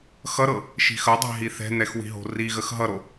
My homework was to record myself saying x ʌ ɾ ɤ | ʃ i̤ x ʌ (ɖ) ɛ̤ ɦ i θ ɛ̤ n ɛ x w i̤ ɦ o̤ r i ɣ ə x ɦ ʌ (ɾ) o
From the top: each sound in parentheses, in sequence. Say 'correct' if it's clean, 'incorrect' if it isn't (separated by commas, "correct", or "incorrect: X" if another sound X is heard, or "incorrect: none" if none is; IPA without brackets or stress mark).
incorrect: dˤ, correct